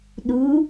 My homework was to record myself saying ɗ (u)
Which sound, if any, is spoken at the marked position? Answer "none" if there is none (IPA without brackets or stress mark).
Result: u